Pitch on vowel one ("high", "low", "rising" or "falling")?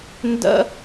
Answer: high